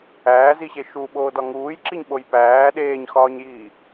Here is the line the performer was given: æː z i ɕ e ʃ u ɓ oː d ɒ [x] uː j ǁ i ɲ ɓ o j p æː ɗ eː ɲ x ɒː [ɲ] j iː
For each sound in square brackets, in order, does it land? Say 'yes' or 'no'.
no, yes

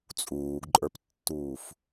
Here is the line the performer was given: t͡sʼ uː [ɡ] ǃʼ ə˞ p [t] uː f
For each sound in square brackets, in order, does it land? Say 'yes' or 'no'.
yes, no

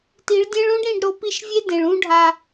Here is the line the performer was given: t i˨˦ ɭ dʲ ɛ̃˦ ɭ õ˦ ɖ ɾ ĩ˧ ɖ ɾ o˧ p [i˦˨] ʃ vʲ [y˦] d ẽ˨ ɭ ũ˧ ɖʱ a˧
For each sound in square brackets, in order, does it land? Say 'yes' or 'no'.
yes, no

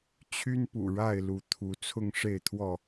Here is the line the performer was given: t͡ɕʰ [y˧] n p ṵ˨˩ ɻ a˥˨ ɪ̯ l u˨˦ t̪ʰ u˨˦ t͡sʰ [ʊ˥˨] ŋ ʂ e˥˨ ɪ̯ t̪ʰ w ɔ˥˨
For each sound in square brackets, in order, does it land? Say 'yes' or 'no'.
no, yes

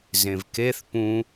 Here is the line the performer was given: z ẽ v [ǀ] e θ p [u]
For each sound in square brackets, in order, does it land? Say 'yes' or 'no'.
no, no

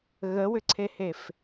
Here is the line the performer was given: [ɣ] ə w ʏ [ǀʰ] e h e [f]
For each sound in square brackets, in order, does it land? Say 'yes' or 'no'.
yes, yes, yes

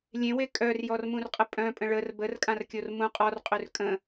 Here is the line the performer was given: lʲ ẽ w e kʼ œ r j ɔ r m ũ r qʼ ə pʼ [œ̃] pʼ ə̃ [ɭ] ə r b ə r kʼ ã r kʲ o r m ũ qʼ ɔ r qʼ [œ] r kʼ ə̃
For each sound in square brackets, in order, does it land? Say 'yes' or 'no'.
yes, yes, no

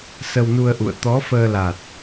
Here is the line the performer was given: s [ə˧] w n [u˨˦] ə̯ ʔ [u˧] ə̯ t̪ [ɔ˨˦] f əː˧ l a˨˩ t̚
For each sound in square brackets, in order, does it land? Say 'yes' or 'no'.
yes, no, no, yes

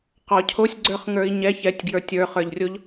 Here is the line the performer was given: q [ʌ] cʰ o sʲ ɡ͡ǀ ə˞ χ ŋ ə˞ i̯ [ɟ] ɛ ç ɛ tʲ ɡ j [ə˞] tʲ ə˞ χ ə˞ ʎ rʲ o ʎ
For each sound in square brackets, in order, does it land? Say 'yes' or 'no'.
no, no, yes

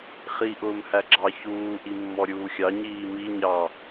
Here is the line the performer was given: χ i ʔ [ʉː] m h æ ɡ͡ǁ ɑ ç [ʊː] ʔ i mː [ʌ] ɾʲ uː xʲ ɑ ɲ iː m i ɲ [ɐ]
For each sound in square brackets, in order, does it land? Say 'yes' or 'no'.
no, no, no, no

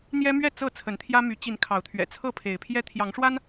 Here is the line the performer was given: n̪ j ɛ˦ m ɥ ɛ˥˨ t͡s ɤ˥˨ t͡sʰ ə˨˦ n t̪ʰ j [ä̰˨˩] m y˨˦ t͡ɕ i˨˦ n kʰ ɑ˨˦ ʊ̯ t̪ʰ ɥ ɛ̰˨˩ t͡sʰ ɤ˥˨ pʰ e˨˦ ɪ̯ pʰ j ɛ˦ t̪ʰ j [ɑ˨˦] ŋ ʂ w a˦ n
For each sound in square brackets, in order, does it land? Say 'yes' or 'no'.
no, yes

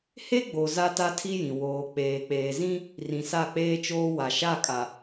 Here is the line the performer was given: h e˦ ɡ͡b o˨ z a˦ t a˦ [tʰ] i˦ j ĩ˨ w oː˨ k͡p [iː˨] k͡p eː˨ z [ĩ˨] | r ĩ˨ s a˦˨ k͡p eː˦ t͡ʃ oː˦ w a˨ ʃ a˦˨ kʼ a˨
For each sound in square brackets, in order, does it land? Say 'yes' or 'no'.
yes, no, no

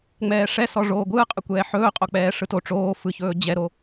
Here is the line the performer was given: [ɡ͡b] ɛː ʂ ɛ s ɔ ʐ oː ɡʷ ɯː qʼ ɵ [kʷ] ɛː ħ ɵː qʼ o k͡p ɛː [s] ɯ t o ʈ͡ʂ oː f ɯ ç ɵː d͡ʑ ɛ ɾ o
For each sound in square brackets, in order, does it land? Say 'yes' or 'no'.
no, yes, no

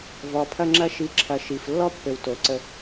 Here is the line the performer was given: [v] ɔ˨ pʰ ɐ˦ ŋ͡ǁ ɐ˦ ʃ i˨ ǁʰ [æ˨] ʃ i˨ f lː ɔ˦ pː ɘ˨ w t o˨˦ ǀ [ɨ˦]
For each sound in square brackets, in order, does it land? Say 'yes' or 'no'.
yes, no, no

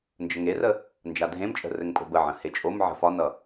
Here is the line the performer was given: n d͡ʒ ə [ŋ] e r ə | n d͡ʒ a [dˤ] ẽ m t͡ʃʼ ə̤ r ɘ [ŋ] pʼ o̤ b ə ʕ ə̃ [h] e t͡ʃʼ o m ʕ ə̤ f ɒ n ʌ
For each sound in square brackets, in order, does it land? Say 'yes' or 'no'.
yes, no, yes, yes

